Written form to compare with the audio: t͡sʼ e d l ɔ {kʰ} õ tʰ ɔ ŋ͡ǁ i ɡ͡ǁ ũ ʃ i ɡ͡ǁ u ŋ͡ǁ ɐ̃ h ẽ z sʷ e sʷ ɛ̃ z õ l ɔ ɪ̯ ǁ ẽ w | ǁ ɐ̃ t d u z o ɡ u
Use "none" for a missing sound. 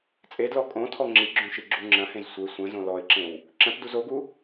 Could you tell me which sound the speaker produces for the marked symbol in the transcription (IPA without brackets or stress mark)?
kʼ